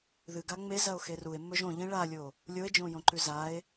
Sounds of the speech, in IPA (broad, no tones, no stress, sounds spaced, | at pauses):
ð ɨ ɡ a ŋ͡m e z ɐ o̯ x e r u e̯ mː ɵ ʒ õ ʎ ĩ ɭ a lʲ o | lʲ o e̯ d͡ʒ õ j õ ǃ ʉ z a e̯